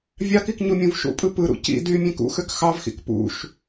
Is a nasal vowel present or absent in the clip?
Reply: present